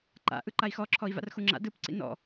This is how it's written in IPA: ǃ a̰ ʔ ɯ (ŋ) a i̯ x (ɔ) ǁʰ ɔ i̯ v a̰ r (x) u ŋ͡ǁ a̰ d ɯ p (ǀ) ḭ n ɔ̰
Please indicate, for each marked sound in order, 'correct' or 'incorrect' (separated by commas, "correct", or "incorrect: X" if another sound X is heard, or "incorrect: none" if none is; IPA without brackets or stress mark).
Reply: incorrect: ǃ, correct, correct, correct